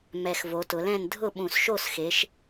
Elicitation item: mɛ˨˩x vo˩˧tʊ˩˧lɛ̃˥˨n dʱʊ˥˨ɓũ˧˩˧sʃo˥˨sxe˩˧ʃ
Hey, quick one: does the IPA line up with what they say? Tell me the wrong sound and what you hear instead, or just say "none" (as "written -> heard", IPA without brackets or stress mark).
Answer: none